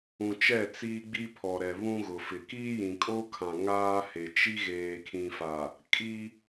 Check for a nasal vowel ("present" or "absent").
present